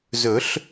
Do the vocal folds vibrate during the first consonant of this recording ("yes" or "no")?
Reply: yes